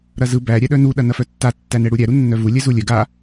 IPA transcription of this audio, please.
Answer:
ɾ ɐ z ɯ b æ ɾʲ æ ɗ œ n u ɗ ɐ n ɐ f œ tː a tː æ n ɛ ɽ u ɾʲ æ ɾ u nː œ v u lʲ ɛ z u lʲ œ ɡ a

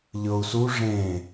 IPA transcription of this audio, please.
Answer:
ʎ ɤ u̯ s u ʐ ẽ

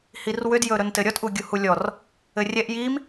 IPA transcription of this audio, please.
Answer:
h i r w ʏ d j ɵ ɾ ɵ n t ɘ ɾʲ ɔ t ʔ u ɡʲ u h u lʲ ɔ r | ɘ rʲ ɛ ʔ j i m

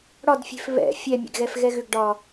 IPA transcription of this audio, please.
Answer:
ɽ ɒ d fʲ e̤ f β ɛ̰ fʲ ɛ mʲ ɛ̰ ɡ ɣ ɛ f ɣ ɛ ɣ ʏ ɡ ɖ ɒ

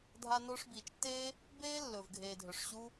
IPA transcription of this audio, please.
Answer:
dʱ a˧ n o˧ ʂ b iː˨ t͡ʃ tː e˦ | b eː˦ lː ɵː˨ v ɡʱ eː˨ dʱ ɵ˨ ʂ ɕ u˦

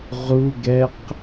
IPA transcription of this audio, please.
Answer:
ʁ u ɡ ɛ q

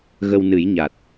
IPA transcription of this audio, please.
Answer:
ɣ ə˧ w n ɨ˨˩˦ j ɲ a˨˩ t̚

